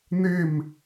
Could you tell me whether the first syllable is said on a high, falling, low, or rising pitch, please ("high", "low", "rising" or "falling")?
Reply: falling